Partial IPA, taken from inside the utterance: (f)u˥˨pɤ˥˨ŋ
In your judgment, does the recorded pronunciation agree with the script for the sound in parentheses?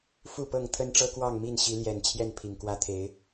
yes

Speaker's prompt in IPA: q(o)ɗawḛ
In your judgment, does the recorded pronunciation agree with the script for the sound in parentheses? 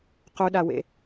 no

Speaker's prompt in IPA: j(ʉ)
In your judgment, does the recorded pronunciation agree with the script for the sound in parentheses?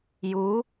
no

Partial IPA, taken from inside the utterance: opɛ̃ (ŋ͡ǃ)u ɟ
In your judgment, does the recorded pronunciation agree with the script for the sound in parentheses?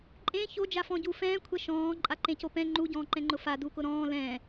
yes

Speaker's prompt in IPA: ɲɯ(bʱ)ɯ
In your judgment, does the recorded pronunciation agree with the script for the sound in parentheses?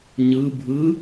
yes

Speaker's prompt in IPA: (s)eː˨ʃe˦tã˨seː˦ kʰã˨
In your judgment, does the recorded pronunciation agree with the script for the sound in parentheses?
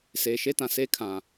yes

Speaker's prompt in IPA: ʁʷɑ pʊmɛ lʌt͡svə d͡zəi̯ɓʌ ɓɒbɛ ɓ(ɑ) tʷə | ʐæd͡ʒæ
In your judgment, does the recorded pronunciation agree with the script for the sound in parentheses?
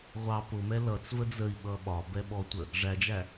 no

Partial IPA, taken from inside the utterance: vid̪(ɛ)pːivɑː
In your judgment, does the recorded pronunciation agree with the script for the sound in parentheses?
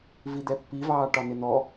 yes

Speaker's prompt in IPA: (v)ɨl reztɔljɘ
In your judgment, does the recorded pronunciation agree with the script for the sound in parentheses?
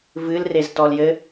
yes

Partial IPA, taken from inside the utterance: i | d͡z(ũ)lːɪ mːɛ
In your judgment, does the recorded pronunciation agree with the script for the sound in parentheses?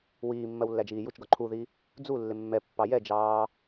no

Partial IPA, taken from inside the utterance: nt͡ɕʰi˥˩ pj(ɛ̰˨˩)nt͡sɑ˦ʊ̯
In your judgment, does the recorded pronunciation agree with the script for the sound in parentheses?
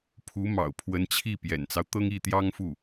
yes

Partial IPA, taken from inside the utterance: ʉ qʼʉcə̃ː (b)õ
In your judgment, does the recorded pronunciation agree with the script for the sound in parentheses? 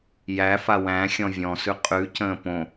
no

